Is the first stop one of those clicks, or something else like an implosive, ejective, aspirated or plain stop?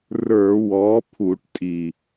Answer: aspirated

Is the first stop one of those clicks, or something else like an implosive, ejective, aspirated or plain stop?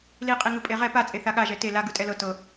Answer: ejective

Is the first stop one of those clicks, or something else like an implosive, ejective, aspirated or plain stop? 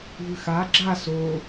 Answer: click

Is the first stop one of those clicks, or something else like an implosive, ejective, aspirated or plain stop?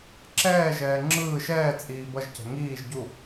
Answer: click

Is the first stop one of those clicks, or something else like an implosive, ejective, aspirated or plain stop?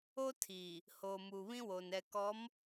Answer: aspirated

